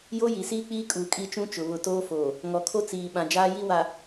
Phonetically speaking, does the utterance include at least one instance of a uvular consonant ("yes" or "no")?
no